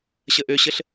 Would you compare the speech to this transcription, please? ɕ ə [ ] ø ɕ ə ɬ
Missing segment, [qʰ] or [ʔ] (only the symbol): ʔ